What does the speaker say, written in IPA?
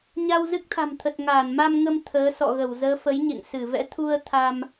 ɲ a˧ w z ɨ˦˥ k̚ t̪ʰ a̤˨˩ m t̪ʰ ə˨˩ t̚ ŋ aː˧˩ n m a˧ m ŋ ə˧ m t̪ʰ əː˨˦ s ɔ̰˧˨ ɣ ə˧˩ w z əː˨˦ f ə˨˦ j ɲ ḛ˧˨ ŋ s ɨ˧˩ v ɛ̰˧˥ t̪ʰ u˧ ə̯ t̪ʰ a˧ m

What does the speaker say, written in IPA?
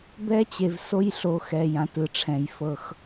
b ɛ˦ t͡ɕ e˨ v s o˦ j ɬ o˨˦ x ɛ˨ j ã˨ t ɯ˨ ʈ͡ʂʰ ɛ̃˨ j f ɤ˦ x

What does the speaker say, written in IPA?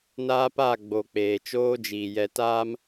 n aː˦ p a˦˨ ɡ͡b oː˨ k͡p eː˨ t͡ʃ oː˦ d͡ʒ iː˨ j ɛ˨ t aː˦ m

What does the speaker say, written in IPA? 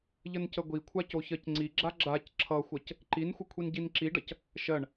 ʎ ə n c ə ɡʷ i kʷʰ a c o ç ɜ c ŋ͡ǀ i ɡ͡ǁ a ɡ͡ǁ a c ǁʰ ʌ xʷ ʌ c | ǃ i n xʷ ə kʷʰ i n ɟ i n ǁ i ɖ ʌ c | ʃ ɜ ɳ

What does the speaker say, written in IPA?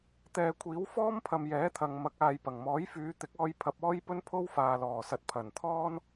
t̪ ɛː˨ kʷʰ iː˨˥ w f ɔː˥ m pʰ ɐ˨ m j ɛː˨˥ t̪ʰ ɐ˨ ŋ m ɐ˨˥ k̚ aː˨ j p ɐ˨˩ ŋ m ɔː˨˥ j f yː˨˧ t̪ ɪ˨˥ k̚ ɔː˧ j pʰ ɐ˧ p̚ ɔː˥ j p ɵ˥ n pʰ o˥ w f aː˨ l ɔː˨˩ s ɐ˨ t̚ pʰ ɐ˨˩ n t̪ʰ ɔː˥ n

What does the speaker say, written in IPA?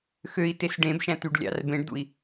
x ø i̯ t e s ɖ ẽ b ʃ æ̃ t y ɖ lʲ ɑ̰ r b ẽ ɖ d̪ ṵ i̯

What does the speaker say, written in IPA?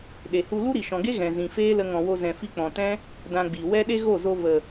ɗ e˨ h u˧ l u˦ ɾ i˨ ʃ ɔ̃˨ ɡ e˦ ɣ ɛ̃˨ z ĩ˨ f eː˦ l ə˧ ŋ ɔ̃˨ w o˧ z ɛ̃˨ f i˧ k͡p ɔ̃˨ t ɛ̃˦ | d ã˧ ɡ͡b i˨ w ɛ˦ ɗ e˦ ɣ o˦˨ z o˧ v ə˨

